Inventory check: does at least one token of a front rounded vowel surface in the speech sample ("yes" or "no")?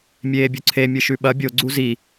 no